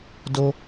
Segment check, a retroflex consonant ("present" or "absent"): absent